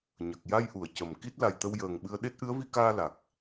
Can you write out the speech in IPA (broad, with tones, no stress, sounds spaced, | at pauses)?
ɲ ə˨˩ k̚ j a˧ j ʔ u˨˩˨ ə̯ c ə˨˩ m k i˦˥ t̚ l a˨˩ j t̪ ə˧ w j əː˨˩ ŋ ɓ ɨ˧ ə̯ ɗ e˦˥ t̚ ʔ ɨ˧˥ ə̯ v i˧ k aː˧ l a˨˩ k̚